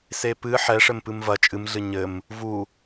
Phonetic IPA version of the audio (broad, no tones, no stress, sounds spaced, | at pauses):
s e p ɨ ħ ɛ ʂ ɘ m p ɨ m v ɐ t͡ʃʼ ɨ m ɮ ɨ ɲ ɘ m | v u